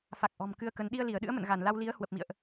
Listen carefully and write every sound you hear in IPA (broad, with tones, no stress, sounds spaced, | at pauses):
f a˨˩ k̚ ʔ ɔ̤˨˩ m k ɨ˧ ə̯ k ə˨˦ n ɗ i˧ ə̯ l i˧˩ ə̯ ɗ ɨ̰˧˥ ə̯ m ə̰˧˨ n ɣ a˧˩ n l a˧ w l i˨˦ ə̯ h w ə˨˩ p̚ m ḭ˧˨ ə̯ ʔ